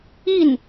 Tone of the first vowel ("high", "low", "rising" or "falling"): falling